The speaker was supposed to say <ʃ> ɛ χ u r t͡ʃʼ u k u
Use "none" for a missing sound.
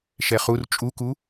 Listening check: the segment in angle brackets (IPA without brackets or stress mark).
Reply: ʃ